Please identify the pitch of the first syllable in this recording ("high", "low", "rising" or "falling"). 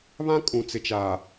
high